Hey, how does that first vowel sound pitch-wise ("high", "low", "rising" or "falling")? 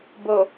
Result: low